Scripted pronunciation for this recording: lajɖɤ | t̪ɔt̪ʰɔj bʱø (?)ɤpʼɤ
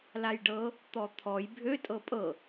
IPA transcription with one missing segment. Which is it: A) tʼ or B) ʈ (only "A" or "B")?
A